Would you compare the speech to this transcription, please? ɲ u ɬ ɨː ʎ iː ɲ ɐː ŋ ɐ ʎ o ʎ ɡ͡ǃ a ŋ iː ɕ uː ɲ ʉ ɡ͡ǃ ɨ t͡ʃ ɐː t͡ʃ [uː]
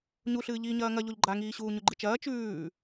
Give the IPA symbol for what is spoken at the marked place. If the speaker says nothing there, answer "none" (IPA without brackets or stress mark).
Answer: ʉː